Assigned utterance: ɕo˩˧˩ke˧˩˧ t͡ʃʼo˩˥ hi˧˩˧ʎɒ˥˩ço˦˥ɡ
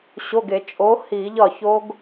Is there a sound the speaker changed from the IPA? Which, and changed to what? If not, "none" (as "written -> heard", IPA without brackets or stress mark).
k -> ɡ